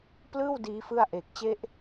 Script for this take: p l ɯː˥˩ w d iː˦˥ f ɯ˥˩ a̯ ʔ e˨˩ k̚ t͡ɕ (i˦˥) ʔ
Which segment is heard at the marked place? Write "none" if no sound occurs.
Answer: e˦˥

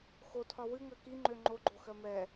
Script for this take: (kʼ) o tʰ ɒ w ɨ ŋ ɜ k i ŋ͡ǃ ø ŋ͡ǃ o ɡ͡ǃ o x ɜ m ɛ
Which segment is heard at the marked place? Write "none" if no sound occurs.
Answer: x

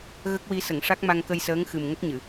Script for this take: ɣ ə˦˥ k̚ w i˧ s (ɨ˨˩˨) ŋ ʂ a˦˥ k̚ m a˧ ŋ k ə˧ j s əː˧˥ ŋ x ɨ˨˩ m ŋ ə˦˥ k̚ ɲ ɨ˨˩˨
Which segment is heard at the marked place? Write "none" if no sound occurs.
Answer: ə˨˩˨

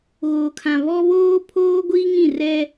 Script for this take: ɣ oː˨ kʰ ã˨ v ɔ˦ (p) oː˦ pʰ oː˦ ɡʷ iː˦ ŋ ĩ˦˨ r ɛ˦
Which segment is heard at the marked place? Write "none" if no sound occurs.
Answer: β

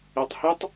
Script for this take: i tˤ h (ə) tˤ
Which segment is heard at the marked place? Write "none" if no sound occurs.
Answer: ə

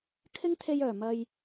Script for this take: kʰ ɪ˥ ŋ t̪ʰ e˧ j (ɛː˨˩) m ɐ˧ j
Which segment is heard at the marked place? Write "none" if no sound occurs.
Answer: œː˨˩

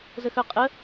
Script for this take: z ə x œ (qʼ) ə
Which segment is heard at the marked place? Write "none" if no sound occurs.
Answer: qʼ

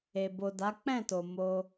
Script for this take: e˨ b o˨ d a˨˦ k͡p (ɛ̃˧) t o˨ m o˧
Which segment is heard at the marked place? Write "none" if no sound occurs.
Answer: ɛ̃˦˨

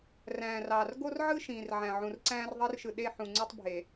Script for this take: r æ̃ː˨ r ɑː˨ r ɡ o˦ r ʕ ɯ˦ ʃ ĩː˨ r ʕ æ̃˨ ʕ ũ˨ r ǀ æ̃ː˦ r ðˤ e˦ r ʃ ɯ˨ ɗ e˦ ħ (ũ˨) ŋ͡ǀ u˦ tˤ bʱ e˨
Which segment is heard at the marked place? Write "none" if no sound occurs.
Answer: ũ˨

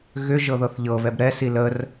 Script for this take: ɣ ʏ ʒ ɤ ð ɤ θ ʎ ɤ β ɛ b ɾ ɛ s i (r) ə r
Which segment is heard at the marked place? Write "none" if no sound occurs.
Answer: l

